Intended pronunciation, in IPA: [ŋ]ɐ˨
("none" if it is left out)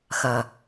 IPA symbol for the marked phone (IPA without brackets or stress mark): x